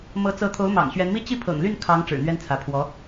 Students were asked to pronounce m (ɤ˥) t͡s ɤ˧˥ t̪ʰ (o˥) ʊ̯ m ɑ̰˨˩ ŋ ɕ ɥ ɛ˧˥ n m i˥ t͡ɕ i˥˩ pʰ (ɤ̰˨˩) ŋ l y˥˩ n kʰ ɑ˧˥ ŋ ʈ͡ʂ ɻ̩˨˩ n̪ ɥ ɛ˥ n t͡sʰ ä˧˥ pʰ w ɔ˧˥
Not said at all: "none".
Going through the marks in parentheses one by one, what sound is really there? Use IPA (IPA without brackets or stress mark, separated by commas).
ɤ˧˥, o˧˥, ɤ̰˨˩